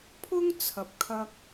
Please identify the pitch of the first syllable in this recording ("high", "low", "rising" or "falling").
high